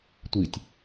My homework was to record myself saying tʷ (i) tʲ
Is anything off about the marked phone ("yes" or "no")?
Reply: no